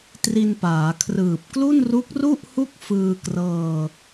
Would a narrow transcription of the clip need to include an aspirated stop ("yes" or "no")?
yes